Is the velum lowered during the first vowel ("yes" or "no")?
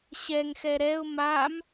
no